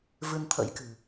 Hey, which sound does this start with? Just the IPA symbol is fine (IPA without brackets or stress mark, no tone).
v